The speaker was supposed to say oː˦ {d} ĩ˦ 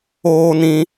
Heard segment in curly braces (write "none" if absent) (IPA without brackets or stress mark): n